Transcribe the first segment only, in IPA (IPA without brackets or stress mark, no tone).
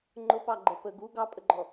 ŋ͡ǃ